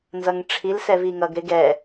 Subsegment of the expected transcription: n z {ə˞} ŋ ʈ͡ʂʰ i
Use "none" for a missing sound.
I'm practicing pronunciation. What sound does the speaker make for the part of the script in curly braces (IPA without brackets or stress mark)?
ʌ